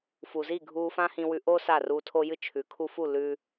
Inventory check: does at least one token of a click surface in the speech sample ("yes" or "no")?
no